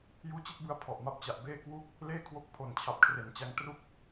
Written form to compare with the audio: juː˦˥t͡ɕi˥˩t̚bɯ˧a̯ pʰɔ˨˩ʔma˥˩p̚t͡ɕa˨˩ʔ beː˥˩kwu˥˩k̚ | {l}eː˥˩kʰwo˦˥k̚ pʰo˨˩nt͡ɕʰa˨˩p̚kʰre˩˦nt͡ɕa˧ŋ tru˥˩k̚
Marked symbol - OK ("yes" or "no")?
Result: yes